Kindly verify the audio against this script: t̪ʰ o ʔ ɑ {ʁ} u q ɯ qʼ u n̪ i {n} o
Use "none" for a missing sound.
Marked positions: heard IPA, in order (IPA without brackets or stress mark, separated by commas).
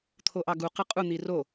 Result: ɡ, r